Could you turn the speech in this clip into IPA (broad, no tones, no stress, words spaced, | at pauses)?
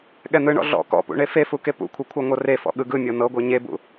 ɠɛn̪ɯɳɔ̰ ɮɔ̰ kɔ̰pṵ ɳefefu kepṵkʷʰɤ kʷʰɤŋʷɤrefɔ̰ ɠɯɡɯmʲɤ n̪ɤɡʷɤ ɲebṵ